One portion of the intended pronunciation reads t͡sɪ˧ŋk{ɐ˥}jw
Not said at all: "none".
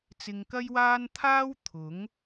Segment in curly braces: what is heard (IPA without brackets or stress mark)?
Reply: ɐ˥